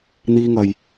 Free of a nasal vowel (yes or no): yes